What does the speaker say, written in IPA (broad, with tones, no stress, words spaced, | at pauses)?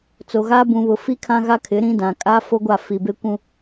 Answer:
t͡so˨ɣaː˦ bũ˦βʊ˦ fi˦ kʰã˦ɣa˦kʰɪ˨˦ ɾĩ˦dã˨ kʼaː˦fo˦ɡʷa˦˨ fi˨be˦kʷũ˦